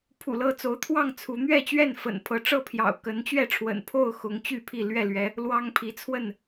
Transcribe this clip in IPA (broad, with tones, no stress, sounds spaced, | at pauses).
pʰ ṵ˨˩ l ɤ˥˨ t͡s o˨˦ ʊ̯ t̪ʰ w ɑ˥˨ ŋ t͡sʰ u˨˦ n̪ ɥ ɛ˥˨ t͡ɕ ɥ ɛ˥˨ n f ə̰˨˩ n pʰ ɤ˨˦ ʈ͡ʂ ɤ˥˨ pʰ j ɑ̰˨˩ ʊ̯ k ə˨˦ n t͡ɕ ɥ ɛ˥˨ ʈ͡ʂʰ w ə̰˨˩ n pʰ o˥˨ ʊ̯ x ʊ˨˦ ŋ t͡ɕ y˥˨ pʰ i˥˨ l ɥ ɛ˥˨ l ɥ ɛ˨˦ | l w ɑ˦ ŋ pʰ i˨˦ t͡sʰ w ə˥˨ n